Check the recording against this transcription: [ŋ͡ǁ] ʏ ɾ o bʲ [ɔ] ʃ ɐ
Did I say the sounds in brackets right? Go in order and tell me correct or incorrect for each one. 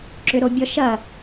incorrect: ǁ, correct

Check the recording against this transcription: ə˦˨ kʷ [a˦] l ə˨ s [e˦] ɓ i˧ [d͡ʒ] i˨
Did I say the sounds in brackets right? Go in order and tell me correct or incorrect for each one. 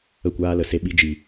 incorrect: aː˦, correct, correct

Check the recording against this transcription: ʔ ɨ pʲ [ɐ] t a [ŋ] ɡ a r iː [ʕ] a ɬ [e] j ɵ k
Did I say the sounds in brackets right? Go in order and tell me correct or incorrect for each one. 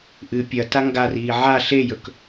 correct, correct, correct, correct

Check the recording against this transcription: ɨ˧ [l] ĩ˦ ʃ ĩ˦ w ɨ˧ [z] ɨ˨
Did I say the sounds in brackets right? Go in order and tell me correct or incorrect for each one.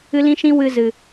correct, correct

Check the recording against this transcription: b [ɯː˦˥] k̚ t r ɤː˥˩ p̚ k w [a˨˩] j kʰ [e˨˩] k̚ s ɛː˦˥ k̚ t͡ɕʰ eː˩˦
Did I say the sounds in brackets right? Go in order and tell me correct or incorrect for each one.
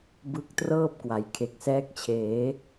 incorrect: ɯ˦˥, incorrect: a˩˦, correct

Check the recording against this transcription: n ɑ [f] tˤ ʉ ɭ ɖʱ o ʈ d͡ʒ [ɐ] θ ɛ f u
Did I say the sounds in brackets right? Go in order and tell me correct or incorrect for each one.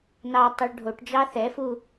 incorrect: none, incorrect: ɑ

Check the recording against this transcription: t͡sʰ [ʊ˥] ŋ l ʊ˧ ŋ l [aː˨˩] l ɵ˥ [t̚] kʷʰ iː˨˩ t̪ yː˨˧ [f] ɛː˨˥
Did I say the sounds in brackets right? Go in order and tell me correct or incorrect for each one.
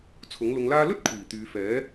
incorrect: ʊ˨˥, incorrect: aː˥, correct, correct

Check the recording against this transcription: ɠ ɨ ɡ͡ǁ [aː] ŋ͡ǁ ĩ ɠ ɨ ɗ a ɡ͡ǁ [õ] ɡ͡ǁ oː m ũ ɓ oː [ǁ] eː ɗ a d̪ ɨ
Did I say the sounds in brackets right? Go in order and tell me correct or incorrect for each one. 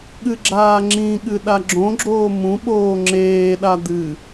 correct, correct, incorrect: ŋ͡ǁ

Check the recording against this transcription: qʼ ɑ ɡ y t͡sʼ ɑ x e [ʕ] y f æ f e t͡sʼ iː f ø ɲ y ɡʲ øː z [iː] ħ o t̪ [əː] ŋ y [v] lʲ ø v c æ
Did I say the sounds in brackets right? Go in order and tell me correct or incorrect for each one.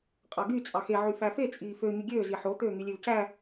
correct, incorrect: i, incorrect: øː, incorrect: none

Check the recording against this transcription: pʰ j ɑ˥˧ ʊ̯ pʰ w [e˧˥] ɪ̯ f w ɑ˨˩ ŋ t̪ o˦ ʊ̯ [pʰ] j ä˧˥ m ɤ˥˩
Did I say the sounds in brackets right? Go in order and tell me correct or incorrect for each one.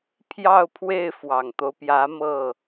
incorrect: e˥˩, incorrect: p

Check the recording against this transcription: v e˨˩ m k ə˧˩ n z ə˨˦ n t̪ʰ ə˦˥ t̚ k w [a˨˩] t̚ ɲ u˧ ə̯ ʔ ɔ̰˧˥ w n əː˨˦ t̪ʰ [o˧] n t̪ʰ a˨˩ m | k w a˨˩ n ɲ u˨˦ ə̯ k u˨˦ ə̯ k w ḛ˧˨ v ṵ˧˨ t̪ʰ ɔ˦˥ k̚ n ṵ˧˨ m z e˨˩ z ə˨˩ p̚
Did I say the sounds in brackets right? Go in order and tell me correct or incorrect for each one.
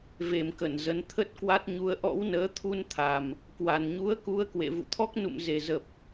incorrect: a˦˥, incorrect: u˧

